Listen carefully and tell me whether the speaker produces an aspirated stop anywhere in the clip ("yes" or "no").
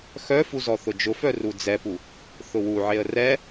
no